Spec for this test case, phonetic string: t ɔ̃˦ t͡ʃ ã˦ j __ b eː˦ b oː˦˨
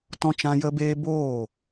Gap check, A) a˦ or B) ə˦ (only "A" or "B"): B